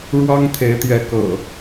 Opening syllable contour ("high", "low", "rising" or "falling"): high